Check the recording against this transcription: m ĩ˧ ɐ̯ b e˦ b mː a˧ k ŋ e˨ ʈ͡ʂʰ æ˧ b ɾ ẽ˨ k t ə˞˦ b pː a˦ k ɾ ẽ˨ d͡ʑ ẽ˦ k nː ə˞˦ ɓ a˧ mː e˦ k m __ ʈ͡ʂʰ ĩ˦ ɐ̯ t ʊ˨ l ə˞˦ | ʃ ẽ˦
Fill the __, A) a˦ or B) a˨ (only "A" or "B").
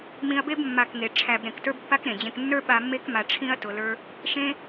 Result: B